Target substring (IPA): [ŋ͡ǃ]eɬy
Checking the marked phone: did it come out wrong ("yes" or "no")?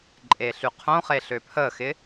yes